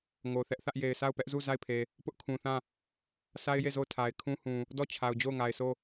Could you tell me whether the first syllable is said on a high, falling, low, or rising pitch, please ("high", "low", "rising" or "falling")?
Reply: low